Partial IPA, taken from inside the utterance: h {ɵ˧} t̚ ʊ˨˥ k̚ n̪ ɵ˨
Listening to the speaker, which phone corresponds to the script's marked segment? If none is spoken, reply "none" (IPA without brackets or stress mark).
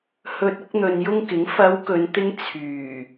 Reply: ɵ˧